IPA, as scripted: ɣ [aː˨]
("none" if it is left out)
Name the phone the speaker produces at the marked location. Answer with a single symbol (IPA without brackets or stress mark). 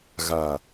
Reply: aː˨